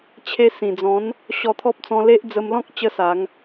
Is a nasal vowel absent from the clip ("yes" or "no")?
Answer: no